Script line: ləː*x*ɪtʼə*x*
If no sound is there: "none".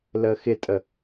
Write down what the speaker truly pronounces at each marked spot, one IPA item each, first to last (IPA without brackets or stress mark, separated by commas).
x, none